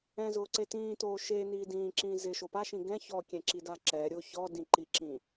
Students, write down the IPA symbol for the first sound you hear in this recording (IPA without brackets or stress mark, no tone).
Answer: ɛ̃